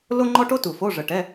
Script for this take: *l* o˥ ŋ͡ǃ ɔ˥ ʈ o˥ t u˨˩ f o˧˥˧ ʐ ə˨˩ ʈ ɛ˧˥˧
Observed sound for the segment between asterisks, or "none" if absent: l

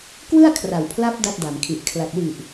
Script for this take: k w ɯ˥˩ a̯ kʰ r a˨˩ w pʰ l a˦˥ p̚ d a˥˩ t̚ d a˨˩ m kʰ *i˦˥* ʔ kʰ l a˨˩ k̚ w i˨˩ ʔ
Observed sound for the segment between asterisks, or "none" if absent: i˨˩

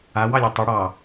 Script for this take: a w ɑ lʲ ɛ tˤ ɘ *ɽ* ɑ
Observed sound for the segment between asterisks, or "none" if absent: ɽ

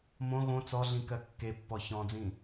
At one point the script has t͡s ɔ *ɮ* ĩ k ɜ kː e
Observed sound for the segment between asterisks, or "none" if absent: ɮ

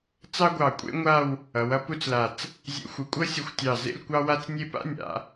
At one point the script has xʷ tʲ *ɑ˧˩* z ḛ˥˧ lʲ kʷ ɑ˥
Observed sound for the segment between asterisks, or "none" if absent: ɑ˧˩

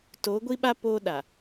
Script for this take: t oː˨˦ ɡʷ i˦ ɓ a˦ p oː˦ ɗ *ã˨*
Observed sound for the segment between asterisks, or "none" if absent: a˨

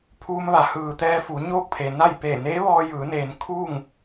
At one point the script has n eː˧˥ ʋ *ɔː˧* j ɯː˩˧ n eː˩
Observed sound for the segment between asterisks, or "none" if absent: ɔː˧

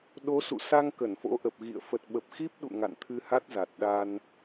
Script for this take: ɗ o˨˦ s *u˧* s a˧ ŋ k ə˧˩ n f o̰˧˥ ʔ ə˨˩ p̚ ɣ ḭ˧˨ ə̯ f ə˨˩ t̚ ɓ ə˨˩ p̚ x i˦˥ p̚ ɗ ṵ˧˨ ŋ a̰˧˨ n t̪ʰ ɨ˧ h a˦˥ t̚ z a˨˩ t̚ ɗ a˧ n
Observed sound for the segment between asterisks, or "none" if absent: ṵ˧˨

